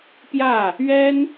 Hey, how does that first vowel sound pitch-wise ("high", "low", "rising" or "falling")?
falling